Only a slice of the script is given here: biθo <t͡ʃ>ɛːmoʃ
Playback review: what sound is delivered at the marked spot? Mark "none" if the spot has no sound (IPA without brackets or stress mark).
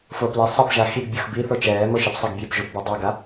t͡ʃ